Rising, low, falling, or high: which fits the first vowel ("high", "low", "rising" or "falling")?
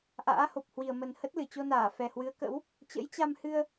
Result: rising